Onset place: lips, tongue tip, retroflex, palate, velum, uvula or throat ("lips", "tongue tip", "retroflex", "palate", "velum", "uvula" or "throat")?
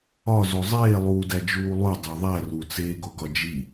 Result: tongue tip